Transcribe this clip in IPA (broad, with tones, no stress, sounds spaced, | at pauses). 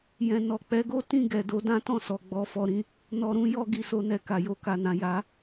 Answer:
j ɛ̃˨ n ɔ˨ k͡p ɛ˨˦ ɡ o˦ t ĩ˦˨ ɡ ɛ˨ d o˨˦ d ã˦ t ɔ̃˦˨ s ɔ˨ ɡ͡b ɔ˧ f ɔ˧ ɾ ĩ˦ | n ɔ˨ ɾ ũ˨˦ j ɔ˧ ɡ i˨ s o˧ n ɛ˨ k a˨ j o˨ k a˨ n ã˨ j a˨˦